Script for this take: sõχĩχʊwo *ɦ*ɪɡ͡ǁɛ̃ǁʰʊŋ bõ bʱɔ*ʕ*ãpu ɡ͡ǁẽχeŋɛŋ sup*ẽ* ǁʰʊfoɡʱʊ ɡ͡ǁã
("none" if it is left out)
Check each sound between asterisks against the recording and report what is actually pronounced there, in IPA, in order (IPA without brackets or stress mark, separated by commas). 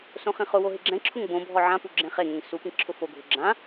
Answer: ɦ, ʕ, ĩ